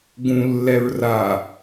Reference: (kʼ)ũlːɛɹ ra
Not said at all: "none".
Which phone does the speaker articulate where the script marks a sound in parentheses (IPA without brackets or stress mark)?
ɡ